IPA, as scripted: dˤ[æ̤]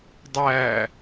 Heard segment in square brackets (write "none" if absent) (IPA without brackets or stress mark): æ